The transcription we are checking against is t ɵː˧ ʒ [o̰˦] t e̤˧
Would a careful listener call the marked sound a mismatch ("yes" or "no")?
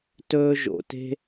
yes